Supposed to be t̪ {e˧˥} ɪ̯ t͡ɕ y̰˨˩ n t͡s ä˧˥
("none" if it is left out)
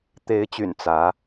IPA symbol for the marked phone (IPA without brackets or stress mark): e˧˥